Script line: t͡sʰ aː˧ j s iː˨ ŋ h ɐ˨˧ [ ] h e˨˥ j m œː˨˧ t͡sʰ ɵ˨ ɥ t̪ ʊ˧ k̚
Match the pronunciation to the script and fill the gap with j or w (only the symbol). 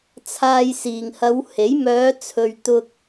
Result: w